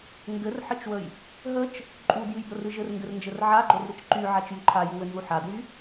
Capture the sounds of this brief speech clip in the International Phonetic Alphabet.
ŋ ɡ ɘ r ħ ɘ t͡ʃ w ə j | ɦ ə t͡ʃ | ǃʼ u d j ɨ j b ə r ɨ ʒ ɘ r ŋ ɡ ɘ r n d͡ʒ ɘ r ʕ a ɡ͡ǃ o r ɾ ɨ t͡ʃ ǃ y ʕ a t͡ʃ j y ǃʰ a j u w ɘ n z u ħ a d w y

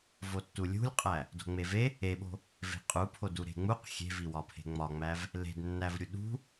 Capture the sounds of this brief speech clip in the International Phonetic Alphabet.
v o tː u lʲ ṳ lʲ qʼ æ | d o̤ ŋ͡m e v e | e ɓ o̤ | v e̤ qʼ u pʰ o d u ɾ e̤ ŋ͡m u q xʲ e̤ v i w ɒ pʰ e̤ ŋ͡m ɒ ŋ͡m æ v | l e̤ d nː æ v ɾʲ u ɗ ṳ

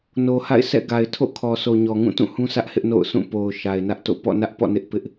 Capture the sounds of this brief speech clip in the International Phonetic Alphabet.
n o˨ h a̰˦˨ ɪ̯ s ɛ̰˦˨ ɡ a˨ ɪ̯ tʰ o̰˦˨ kʰ ɔ˨ s o˨ ɲ ɔ˨ ŋ ũ˦˨ t ũ˦˨ h ũ˦ s ä˦ ʔ h ɪ˦ ʔ n o̰˦˨ ʊ̯ s ũ˦˨ p o˨ ʊ̯ ʃ a˨ ɪ̯ n ä˦ ʔ t o̰˦˨ p ɔ̰˦˨ n ä˦ ʔ p ɔ̰˦˨ n ɪ˦ ʔ p ɪ˦ ʔ

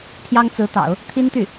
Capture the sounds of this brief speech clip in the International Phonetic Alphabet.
t̪ʰ j ɑ˥ ŋ t͡s ɹ̩˧˥ t̪ ɑ̰˨˩˦ ʊ̯ | t̪ʰ i˥ n t̪ y˥˩

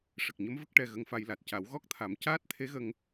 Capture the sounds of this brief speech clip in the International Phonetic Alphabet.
ʂ ə˨˩ k̚ ɲ ə˧˥ m v ə˦˥ k̚ ʈ ɛ˧ ɣ ə˧ ŋ f a˧ j l a˨˩ t̚ c a˨˩˦ w ɣ ɔ˦˥ k̚ t̪ʰ a˨˩˦ m c aː˦˥ t̚ t̪ʰ e˧˥ ɣ ə˧ ŋ

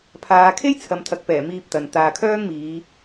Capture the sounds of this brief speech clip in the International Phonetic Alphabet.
pʰ aː˨˧ kʰ e˥ j t͡sʰ ɐ˨ m t̪ʰ ɐ˨ k̚ p ɛː˨˩ m iː˧ p̚ t̪ ɐ˨ n t̪ aː˨ kʰ œː˥ ŋ m iː˨˧

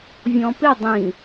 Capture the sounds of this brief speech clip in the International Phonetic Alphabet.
vʲ ɔ̃ p ɪ dˤ ĩ

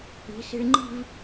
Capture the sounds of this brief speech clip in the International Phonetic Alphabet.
i̤˩˧ s i̤˧ ɭ ŋ͡ǃ i̤˥˧ v

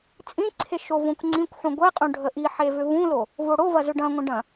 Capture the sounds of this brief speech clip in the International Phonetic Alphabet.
t͡sʼ ĩ ǀʰ e ʃ o v õ kʷ ŋ͡ǀ ĩ kʷ ħ ũ ɡʷ ɛ qʼ ũ ɖʱ ə ʔ i ħ e v ʏ v ũ l o | v o ɽ o v ɐ z ʏ ɖ ɐ̃ ŋʷ ə̃ ɖ ɐ̃

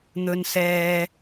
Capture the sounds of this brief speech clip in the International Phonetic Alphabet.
n̪ ɵ˨ n s ɛː˨

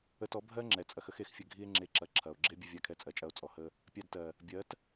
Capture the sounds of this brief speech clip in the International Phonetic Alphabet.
ə˧ t ɔ˨˦ bʱ ɜ˦ ŋ͡ǁ ɛ˨ t͡sʼ ɐ˧ x ə˦ x e˨ x fʲ ə˦˨ ɡʱ i˦ e̯ ŋ͡ǁ e˧ ǁ ɐ˨˦ ǁʰ ɐ˨ o̯ ɡ͡ǁ e˦ bʲ ə˧ vʲ a˧ kʰ ɛ˧ t͡sʼ ɜ˨ t͡ʃʼ ɐ˧ o̯ t͡sʼ ɔ˨ h ə˦ | pʲ a˧ d t ɜ˨ | bʲ ɜ˨˦ t

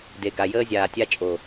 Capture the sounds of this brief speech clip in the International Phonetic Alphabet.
d e˨ ɡ a˨ j əː˦ zʲ aː˨ tʲ a˦ t͡ʃʼ o˨

